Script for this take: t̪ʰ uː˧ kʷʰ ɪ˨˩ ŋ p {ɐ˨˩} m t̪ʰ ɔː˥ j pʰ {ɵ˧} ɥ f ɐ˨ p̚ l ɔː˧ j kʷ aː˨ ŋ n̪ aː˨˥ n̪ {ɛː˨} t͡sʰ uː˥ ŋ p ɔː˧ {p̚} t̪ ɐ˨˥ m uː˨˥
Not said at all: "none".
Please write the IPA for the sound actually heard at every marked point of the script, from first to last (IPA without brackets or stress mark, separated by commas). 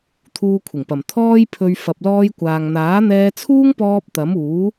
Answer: ɐ˨˩, ɵ˧, ɛː˧, p̚